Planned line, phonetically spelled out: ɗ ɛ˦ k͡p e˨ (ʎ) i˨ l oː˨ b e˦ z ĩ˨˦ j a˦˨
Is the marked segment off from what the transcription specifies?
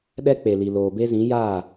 yes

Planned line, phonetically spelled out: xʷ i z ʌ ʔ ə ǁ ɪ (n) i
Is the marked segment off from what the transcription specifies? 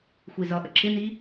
no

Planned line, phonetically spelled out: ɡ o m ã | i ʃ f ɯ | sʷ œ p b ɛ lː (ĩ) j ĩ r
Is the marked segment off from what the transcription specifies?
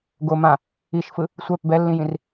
no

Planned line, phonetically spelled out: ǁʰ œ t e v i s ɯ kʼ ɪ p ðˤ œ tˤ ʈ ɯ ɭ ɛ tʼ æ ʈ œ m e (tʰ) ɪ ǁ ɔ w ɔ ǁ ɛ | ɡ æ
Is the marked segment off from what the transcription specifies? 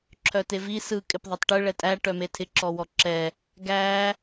no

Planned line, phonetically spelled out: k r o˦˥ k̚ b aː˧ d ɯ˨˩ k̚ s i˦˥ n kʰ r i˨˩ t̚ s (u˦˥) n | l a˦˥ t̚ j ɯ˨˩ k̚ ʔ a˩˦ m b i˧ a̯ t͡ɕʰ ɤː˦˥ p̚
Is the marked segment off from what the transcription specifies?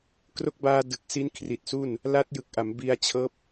yes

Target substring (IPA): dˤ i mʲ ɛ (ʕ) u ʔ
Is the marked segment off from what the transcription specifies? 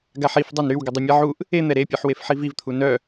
no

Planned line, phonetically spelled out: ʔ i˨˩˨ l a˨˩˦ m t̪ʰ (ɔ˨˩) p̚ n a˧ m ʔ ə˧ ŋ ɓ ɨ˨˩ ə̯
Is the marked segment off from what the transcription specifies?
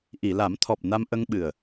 no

